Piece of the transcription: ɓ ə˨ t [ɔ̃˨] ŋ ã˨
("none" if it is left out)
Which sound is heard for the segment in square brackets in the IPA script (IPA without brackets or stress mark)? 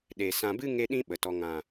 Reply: ɔ˨